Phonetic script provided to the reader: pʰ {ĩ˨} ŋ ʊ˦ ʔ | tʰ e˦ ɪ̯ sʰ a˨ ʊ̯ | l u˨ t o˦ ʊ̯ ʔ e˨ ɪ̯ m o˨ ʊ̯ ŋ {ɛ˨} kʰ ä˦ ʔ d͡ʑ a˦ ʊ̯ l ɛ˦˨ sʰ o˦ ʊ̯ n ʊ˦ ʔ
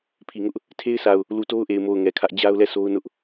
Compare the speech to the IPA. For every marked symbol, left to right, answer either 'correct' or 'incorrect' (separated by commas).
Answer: incorrect, correct